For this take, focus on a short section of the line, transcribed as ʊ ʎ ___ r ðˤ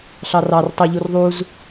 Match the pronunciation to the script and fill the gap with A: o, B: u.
B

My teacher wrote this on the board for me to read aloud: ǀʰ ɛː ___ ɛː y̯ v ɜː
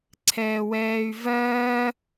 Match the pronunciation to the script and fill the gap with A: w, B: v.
A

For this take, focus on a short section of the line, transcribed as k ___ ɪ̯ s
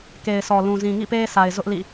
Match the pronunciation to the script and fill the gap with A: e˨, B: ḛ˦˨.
A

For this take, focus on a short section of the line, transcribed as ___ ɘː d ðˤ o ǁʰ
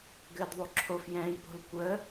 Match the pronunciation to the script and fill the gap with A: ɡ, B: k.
A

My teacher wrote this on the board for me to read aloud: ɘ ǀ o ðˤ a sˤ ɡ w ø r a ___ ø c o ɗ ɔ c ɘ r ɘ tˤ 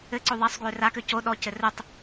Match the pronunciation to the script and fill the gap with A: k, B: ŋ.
A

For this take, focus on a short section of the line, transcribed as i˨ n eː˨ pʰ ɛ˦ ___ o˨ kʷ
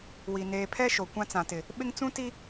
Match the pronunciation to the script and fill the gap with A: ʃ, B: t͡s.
A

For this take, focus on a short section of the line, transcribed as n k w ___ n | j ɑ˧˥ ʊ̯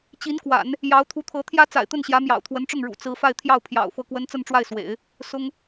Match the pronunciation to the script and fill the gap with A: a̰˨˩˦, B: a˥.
A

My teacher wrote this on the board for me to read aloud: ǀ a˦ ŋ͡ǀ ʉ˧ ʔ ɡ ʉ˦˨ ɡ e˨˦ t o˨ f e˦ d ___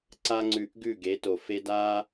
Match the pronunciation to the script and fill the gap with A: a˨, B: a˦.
B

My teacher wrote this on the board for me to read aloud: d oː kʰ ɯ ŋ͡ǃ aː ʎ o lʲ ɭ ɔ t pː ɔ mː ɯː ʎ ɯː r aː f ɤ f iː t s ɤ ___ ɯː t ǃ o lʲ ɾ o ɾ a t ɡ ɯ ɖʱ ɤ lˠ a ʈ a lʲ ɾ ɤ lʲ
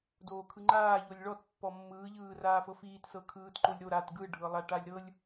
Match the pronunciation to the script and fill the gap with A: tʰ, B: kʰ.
B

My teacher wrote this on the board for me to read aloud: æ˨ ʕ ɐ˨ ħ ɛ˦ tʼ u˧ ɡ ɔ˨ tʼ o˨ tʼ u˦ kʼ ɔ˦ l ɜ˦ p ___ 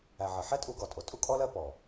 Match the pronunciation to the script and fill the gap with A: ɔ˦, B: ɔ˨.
B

